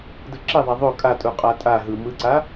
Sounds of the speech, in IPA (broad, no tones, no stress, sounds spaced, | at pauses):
d ɯ ǁ e ðˤ a ðˤ o kʼ a tʼ u qʼ a tʼ a ɦ ɯ m ɯ ǀ a